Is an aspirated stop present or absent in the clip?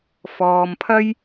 present